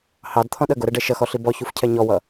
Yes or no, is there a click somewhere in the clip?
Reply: no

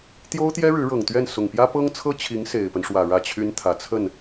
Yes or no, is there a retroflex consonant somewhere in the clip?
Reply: yes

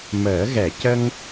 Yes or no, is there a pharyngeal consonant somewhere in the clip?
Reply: no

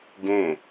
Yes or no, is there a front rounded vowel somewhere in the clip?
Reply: no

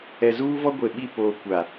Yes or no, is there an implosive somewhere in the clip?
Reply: yes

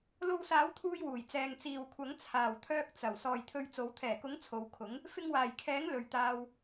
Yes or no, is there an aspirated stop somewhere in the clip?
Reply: yes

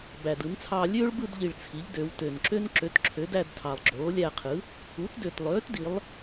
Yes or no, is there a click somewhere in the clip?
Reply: yes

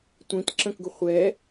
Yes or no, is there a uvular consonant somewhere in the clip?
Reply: yes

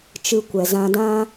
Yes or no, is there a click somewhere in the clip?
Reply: no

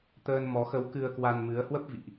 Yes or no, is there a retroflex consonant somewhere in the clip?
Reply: no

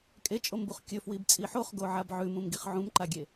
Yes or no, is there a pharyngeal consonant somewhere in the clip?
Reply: yes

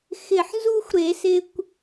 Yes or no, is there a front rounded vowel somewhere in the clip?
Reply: no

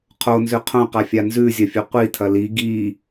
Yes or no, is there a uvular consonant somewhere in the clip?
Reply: yes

